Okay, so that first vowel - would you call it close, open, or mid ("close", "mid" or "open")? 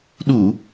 close